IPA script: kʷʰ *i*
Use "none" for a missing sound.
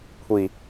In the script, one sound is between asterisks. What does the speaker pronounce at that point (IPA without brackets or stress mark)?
i